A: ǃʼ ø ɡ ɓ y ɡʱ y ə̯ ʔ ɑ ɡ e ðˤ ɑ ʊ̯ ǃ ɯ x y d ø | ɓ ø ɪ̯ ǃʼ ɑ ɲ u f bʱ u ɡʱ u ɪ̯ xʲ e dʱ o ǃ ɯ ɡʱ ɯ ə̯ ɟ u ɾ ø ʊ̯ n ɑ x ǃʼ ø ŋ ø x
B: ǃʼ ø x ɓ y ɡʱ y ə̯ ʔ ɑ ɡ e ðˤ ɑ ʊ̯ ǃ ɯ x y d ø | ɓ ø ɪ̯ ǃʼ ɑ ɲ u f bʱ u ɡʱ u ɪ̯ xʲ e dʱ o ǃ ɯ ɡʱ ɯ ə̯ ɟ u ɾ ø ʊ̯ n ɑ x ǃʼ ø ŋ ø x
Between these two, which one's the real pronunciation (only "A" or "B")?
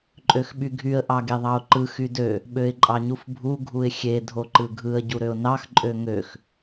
B